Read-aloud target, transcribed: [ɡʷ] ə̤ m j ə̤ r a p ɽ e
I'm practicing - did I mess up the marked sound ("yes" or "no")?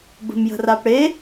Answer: yes